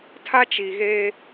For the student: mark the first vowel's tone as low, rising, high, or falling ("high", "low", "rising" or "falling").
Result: high